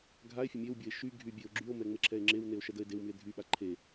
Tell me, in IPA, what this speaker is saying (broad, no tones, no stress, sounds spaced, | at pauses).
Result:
ɡʱ a e̯ fʲ ə mʲ e w bʲ ə e̯ ʃ y ɡʱ y bʲ e o̯ ɡ͡ǁ y o̯ m ɛ ŋ͡m e ǁʰ ɛ e̯ ŋ͡ǁ e w n e o̯ ʃ ɛ d ə e̯ d e w m y e̯ dʱ y ɓ a ǃʰ e